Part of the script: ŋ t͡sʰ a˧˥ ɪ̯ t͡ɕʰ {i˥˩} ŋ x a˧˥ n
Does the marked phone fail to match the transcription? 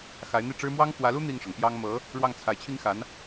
yes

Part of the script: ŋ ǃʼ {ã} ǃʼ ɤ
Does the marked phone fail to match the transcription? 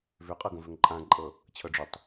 no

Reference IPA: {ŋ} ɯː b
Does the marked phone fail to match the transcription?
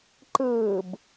yes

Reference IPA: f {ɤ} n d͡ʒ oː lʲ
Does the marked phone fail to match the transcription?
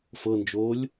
no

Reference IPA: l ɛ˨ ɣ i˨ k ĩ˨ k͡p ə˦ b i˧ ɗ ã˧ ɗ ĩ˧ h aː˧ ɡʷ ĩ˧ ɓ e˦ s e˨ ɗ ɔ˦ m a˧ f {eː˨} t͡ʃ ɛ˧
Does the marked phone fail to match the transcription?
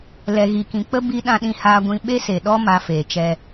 no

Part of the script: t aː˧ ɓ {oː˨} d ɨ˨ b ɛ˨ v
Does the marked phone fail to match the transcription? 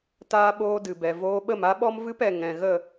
yes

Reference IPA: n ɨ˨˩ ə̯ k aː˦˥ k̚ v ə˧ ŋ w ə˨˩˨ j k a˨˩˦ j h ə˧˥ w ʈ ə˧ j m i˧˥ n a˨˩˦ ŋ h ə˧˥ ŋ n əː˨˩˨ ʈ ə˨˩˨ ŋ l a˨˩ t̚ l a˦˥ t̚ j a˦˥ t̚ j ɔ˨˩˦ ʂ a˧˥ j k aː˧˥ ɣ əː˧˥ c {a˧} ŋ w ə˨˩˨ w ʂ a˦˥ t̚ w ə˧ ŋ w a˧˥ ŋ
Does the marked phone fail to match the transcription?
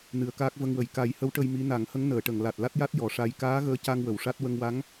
no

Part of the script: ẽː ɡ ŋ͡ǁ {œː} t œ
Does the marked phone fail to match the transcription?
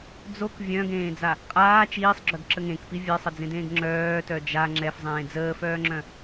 no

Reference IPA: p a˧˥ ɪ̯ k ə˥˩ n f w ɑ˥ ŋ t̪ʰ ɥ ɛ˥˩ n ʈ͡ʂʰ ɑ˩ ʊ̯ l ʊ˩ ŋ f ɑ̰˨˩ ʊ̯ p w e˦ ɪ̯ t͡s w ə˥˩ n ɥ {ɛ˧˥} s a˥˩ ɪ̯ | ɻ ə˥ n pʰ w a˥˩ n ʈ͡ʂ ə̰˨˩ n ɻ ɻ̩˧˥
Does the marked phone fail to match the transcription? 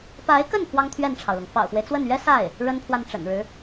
yes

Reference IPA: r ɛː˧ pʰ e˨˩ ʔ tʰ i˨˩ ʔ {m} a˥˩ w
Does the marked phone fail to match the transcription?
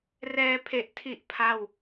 yes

